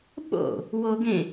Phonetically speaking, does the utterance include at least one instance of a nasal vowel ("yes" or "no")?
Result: yes